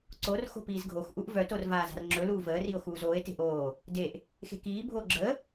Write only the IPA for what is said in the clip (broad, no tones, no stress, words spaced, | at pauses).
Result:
ǀor xo̤piːzɡʱoxʔuʔ vœtor vaːza̤rŋ͡ǁɵluː vəːrio̯ xuːzoːe̯te̤ʔ oː | deʔ | xe̤kiːbʱoː ɡ͡ǁə